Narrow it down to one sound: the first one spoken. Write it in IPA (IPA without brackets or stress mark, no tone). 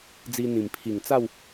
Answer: d͡z